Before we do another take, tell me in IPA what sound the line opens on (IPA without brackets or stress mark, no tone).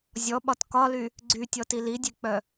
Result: zʲ